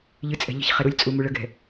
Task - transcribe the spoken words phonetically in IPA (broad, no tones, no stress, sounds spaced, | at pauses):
ʎ ɨ t͡sʼ ɛ̤ ʎ ə̤ ç χ ɛ ɾ u lʲ t͡sʼ u m u ɭ ə ɡ ɛ̤